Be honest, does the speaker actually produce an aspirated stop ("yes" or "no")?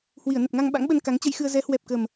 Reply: no